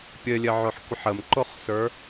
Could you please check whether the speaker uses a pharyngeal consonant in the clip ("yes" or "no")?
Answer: yes